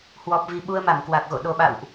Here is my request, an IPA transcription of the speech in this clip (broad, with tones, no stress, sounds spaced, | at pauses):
h w ɔ˨˩ p̚ v i˨˩ ɓ u˧ ə̯ m a˧˩ m k w a˨˩ k̚ ɣ o̰˧˨ ɗ o˨˩ ɓ a̰˧˨ w ʔ